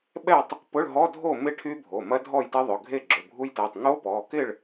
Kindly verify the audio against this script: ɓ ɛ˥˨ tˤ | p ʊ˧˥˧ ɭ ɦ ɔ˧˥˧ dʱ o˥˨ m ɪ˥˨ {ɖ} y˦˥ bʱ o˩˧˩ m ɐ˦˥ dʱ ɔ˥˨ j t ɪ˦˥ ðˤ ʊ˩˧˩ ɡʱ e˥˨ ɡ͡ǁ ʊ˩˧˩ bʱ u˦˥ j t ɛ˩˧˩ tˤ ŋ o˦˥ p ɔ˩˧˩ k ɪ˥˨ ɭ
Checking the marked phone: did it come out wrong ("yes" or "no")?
yes